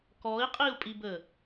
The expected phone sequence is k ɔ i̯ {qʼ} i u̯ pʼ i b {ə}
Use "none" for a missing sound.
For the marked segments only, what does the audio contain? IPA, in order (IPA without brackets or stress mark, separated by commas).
qʼ, ə